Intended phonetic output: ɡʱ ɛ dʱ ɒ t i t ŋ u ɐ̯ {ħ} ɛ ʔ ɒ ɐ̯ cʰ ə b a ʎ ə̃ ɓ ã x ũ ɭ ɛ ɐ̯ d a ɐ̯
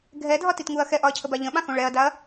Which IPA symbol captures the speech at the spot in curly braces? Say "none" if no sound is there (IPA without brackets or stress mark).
x